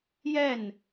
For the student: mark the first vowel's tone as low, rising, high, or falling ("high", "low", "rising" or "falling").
falling